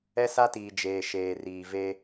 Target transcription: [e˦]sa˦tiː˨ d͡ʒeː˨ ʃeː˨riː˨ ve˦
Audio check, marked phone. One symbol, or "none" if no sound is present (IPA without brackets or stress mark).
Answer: ɛ˦